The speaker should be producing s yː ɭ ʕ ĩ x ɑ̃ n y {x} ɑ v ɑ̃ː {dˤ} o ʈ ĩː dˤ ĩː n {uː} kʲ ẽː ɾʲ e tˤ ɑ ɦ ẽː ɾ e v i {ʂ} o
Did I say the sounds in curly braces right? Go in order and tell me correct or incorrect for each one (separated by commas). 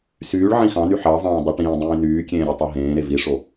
incorrect, correct, incorrect, correct